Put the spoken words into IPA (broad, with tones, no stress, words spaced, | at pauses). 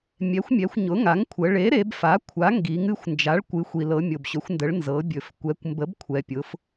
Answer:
mʲɛ˩˥xʷmʲɛ˩˧xʷ ɲʊ˩˥ŋa˩˥ŋkʷʰə˩˧ ɭe˩˥ ɾe˩˧bfa˩˥ kʷʰa˩˥ŋɡi˩˧ŋ ɨ˩˥xʷnd͡ʒa˩˥ɭkʷɨ˩˧ xʷi˩lɤ˩˧ mʲo˩bɕɵ˩˧xʷndə˩˧ɭ nzɤ˩˧bʲɵ˩f kʷɛ˩˧kʷmbə˩˥b kʷʰɛ˩pʲʊ˩˧f